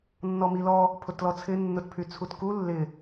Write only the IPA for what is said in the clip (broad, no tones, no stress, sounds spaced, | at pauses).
nː ɔ m i l ɔ | pʰ ʊ t l ɔ t͡sʰ ɪ nː ʊ t pʰ y t͡sʰ u t k u lː ɪ